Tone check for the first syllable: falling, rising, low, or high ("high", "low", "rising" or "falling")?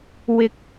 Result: low